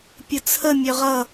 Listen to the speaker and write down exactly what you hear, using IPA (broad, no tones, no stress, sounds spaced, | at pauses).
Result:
pʲ ʊ t͡sʰ ə mʲ œ ʁ ʌ